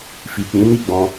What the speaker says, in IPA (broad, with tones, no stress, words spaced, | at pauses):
fi˨k͡pĩ˨˦ni˦˨ɡ͡bɔ̃˧